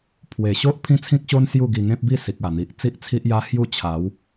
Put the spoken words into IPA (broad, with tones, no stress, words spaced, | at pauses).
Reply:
pʰwe˨˩ ɕo˦ʔ pʰĩ˦t͡sʰĩ˦k̚ɕo˦n sju˥˧ɡi˧ ŋẽ˦p̚bi˥˧ si˨k̚a˨˩n̪i˨ʔ t͡si˦ʔt͡sʰi˦ʔja˦hju˥˧ t͡ɕʰa˨˦w